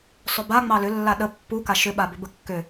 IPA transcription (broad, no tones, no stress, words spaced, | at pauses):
sˤʏba ŋ͡mɑlʏlːa ɗə pːuka ʃʏɓabʏ bəkːʏ